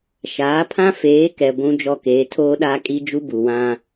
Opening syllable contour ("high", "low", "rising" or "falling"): rising